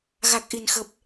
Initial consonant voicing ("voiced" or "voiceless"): voiced